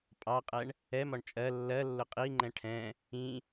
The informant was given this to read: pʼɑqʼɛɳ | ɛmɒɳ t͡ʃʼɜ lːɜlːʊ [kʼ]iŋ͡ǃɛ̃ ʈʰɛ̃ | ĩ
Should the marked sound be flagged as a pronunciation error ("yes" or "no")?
yes